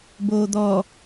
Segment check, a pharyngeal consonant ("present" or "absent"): absent